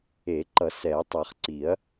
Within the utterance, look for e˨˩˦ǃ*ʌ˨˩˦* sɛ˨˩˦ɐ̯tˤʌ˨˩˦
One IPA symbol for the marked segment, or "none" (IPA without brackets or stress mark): ʌ˨˩˦